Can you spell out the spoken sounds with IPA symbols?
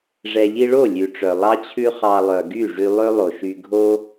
ʐ ɛ˨ ʎ i˧ ɭ o˦˨ lʲ ʉ˨ ʈ͡ʂ œ˨ lˠ ɑ˦ t͡ɕʰ ʉ˦ χ ɑ˧ lˠ œ˨ ɡ y˦˨ ʐ y˧ lˠ ø˦ lˠ o˨ ʃ y˧ ɡʱ o˦

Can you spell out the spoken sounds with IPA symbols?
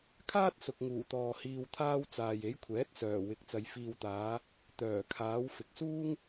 kʰ aː˥ t̚ s ʊ˨ k̚ ŋ uː˨˩ t̪ ɔː˨ h iː˧ w t̪ʰ aː˥ w t͡s aː˨ j e˨˥ j kʷʰ ɛː˨˥ t̚ s œː˨˩ w ɪ˨˥ k̚ t͡s ɐ˨ j f iː˨ w t̪ aː˨˧ | t̪ œː˨˩ kʰ aː˨˧ w f ɪ˨ k̚ s uː˥ ŋ

